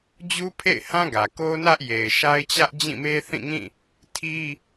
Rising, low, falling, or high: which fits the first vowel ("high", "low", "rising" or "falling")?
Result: high